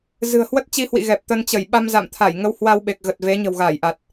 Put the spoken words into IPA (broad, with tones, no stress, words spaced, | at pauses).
zɨ̤˨˩ə̯hwə˦˥t̚t͡ɕi˧hwḭ˧˨ ɣɛ˨˩p̚t̪ə˧nt͡ɕə˧˩j ɓa˧mza̰˧˨m t̪ʰa˧˩jŋə˧w hwa˧w ɓe˨˩k̚ɣə˨˩t̚ ve˨˦ ɲə̤˨˩wɣaː˧˩jʔa˨˩t̚